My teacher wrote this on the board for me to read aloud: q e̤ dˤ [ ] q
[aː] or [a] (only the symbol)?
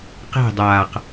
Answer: aː